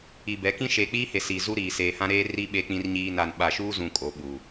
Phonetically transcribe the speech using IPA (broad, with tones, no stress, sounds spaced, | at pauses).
i˨ b ɛ˨˦ k ĩ˦ ʃ e˨ k͡p iː˦ h e˨ s iː˨ z u˦ ɾ iː˨ s eː˨ h ã˦ ɾ eː˦ r i˦ ɓ eː˦ k͡p ĩ˦ r ɲ iː˦ n a˨ n ɓ a˨ ʃ uː˦ z ũ˨ kʼ o˨˦ ɓ uː˨